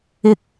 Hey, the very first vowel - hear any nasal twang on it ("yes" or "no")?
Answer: no